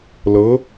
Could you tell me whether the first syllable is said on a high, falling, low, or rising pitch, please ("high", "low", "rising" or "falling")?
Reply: rising